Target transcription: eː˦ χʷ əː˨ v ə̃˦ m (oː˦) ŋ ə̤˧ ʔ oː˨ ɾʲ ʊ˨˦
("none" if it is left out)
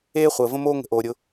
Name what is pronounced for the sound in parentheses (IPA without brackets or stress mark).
oː˦